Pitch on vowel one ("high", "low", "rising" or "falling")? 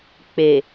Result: low